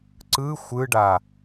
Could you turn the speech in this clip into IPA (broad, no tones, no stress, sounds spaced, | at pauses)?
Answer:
ǀ ɯ xʷ ɯ ɖ a